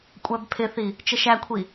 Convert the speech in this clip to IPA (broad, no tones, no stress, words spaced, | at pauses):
kʷʼæbpʰɪθi | t͡ʃəʃækʷʰi